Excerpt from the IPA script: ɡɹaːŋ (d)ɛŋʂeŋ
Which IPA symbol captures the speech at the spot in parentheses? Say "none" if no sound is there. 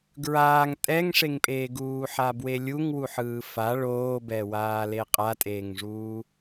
tʼ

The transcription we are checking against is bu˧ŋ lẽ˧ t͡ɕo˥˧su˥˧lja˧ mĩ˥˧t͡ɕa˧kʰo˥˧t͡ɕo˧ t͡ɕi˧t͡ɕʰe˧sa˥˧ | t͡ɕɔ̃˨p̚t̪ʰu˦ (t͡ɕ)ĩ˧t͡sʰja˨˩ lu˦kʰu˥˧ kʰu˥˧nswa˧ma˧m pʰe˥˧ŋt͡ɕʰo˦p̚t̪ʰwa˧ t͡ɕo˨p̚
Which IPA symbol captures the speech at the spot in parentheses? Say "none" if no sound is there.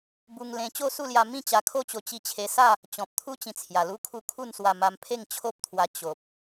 t͡ɕ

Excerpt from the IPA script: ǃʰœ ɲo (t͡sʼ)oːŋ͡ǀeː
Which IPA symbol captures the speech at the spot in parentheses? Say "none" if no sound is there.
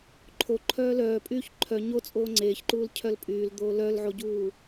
t͡sʼ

